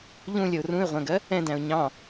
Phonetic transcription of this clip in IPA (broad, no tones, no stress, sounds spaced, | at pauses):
ʎ ũ lʲ ə ʊ̯ r ũ ɪ̯ ʁʷ æ̃ ɡ ɜ | ɛ̃ d æ̃ ʊ̯ ɲ ɑ̃